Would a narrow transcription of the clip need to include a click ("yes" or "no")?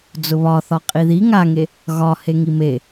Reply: no